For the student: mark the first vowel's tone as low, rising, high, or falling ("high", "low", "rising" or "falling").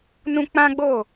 high